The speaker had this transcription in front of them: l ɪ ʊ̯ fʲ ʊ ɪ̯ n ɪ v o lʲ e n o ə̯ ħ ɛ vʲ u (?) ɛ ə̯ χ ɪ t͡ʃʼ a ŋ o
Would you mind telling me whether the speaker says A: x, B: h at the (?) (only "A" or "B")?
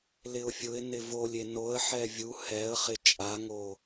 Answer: B